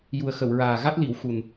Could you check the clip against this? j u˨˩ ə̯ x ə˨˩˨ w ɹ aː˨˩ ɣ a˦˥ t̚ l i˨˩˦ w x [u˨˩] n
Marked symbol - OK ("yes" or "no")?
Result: yes